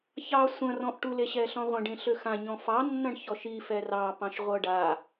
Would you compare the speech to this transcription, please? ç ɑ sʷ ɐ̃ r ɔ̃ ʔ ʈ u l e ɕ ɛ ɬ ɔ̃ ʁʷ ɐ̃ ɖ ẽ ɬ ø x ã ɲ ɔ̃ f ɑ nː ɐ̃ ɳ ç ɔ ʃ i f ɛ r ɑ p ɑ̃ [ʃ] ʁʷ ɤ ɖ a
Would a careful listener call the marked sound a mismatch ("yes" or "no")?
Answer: no